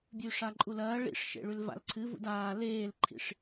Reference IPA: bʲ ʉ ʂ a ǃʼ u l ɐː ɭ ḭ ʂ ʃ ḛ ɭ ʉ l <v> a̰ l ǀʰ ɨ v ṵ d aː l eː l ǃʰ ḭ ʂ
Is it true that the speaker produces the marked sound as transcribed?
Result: yes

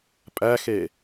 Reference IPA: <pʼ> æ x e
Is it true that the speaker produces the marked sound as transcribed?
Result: yes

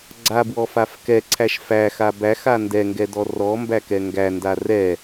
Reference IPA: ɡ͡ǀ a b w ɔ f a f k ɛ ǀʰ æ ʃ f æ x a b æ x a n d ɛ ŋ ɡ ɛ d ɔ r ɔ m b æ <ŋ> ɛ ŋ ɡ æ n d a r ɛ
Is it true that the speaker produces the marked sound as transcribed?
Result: no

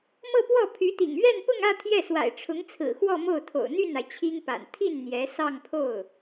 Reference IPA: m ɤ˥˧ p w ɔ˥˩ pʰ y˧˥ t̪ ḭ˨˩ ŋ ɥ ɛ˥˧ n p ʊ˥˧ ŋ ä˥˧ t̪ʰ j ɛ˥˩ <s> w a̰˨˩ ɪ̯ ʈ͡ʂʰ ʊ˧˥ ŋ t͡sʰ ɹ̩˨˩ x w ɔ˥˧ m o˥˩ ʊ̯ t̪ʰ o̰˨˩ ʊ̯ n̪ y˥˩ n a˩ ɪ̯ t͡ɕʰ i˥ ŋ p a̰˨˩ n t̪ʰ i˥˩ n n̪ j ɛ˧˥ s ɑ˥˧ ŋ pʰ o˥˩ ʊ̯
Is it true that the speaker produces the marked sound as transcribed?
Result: yes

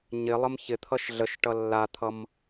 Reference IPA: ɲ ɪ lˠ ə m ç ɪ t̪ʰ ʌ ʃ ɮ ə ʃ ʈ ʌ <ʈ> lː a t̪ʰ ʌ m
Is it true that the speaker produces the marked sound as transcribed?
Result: no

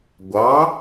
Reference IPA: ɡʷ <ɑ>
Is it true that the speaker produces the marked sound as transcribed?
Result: yes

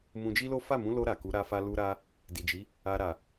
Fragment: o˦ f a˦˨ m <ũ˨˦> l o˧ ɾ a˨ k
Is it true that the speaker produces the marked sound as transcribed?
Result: yes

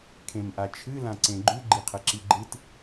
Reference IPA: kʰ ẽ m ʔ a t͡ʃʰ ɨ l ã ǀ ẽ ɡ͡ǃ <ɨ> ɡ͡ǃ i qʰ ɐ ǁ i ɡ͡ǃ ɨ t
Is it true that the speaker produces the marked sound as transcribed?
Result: no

